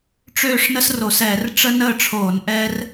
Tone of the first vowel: falling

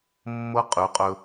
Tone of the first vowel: high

